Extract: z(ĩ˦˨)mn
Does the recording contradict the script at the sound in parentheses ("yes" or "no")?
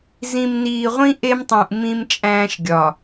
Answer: yes